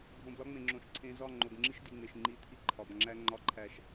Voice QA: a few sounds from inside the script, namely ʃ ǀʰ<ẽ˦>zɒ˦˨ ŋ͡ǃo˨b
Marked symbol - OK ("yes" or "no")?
no